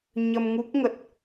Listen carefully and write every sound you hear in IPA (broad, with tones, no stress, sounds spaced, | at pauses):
ɲ ə˧ m ŋ u˦˥ k̚ ŋ ə˨˩ t̚